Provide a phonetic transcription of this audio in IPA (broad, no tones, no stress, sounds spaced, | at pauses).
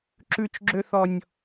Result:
ǁ ʉ t͡ʃ ɡ͡ǁ ø θ ɔ nʲ